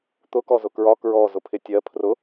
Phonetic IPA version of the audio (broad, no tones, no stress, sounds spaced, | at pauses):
t̪ ʊ k ɔ z ʊ k ɹ ɒ k ɹ ɔ z ʊ pʰ ɪ tʲ ɜ pʰ r ʊ